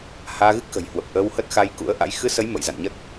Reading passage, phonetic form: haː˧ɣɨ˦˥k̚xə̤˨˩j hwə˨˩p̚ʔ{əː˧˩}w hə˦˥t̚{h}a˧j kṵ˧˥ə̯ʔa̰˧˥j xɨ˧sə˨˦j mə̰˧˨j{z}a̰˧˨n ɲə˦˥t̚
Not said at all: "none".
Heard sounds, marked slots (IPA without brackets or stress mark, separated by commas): əː˧, x, z